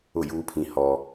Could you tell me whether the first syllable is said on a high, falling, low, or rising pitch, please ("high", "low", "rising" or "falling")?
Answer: falling